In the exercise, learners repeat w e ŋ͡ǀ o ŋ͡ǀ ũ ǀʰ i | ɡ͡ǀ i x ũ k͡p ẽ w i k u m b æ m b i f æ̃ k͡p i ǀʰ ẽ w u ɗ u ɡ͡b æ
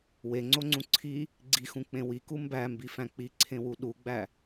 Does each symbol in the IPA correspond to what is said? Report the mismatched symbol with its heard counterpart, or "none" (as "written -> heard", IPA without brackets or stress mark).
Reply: none